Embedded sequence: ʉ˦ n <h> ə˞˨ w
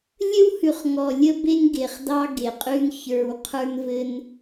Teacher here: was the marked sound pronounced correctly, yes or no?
no